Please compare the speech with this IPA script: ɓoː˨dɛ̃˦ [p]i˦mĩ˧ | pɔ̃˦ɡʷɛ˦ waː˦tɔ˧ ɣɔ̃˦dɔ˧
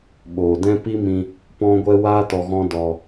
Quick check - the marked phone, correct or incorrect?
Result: correct